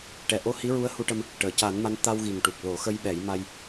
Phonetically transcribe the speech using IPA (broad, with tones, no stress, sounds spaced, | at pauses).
ʈ ɛ˨˩ ʔ o˧ h i˧˥ ɹ u˧˥ ə̯ h u˧ ʈ ə˧ m | ʈ əː˨˩˨ c a˨˩˦ n m a˧˥ n t̪ a˧ w ɣ i˨˩ ŋ ʈ u˨˩ k̚ l o˨˩˦ x ə˧ j ɓ ɛ˨˩˦ j m a˧ j